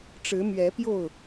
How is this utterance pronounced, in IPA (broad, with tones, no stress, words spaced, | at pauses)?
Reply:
ʈ͡ʂɻ̩˨˦mɥɛ˨˦pjo˥˨ʊ̯